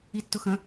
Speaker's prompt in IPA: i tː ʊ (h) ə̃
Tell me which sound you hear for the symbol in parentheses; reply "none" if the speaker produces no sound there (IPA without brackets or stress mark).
x